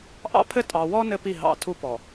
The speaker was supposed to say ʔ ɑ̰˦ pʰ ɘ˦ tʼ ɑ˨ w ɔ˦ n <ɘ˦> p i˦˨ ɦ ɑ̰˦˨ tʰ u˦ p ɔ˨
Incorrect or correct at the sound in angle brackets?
correct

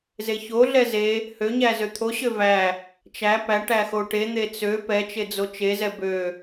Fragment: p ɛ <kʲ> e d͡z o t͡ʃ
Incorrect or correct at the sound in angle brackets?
incorrect: t͡ʃ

